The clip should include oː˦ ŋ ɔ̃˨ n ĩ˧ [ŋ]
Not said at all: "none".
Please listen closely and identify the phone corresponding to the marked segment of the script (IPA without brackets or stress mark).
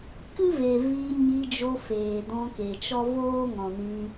none